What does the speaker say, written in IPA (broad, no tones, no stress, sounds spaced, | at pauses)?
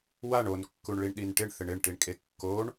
w a ɳ o n kː u ɳ ɭ i ɳ ɗ i n ʈ ɪ ɳ θ ɪ ɳ ɪ ɳ ʈ i ɳ kʼ e kː o ɳ